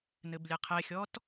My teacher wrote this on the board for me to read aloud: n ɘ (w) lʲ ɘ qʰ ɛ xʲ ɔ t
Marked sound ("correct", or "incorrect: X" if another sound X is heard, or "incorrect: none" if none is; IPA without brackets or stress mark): incorrect: b